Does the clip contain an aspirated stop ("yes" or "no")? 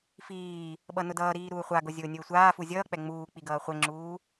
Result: no